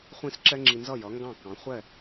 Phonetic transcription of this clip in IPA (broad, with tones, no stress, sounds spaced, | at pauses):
χʷ ĩ˥˩ s ǁ ɛ˥ ŋ͡ǁ i˧ n z ʌ˥˩ j ʌ˩˥ ŋ ɡ ɑ̃˥˩ k ɑ̃˩˥ χʷ ɛ˥˩